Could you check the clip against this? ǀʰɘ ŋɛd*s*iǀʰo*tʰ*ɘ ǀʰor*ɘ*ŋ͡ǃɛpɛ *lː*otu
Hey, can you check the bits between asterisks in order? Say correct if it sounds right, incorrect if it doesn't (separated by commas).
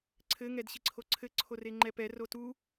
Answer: incorrect, incorrect, incorrect, incorrect